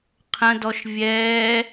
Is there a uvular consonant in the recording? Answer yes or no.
yes